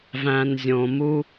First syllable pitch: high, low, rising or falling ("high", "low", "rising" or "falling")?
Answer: low